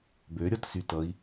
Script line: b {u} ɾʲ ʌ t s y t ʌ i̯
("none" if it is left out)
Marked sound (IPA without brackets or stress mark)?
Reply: ø